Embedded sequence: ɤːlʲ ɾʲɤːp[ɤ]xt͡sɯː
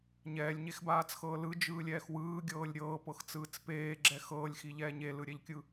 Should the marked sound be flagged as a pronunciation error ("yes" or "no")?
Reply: no